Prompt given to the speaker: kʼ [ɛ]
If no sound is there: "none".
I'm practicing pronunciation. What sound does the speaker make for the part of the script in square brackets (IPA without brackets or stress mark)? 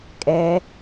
ɛ